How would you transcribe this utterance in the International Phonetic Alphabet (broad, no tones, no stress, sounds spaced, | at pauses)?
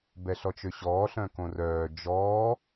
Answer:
b ɛ ɬ ɔ t͡ʃ ø ɕ ɔː ɬ œ̃ k õ r œː d͡ʒ ɔː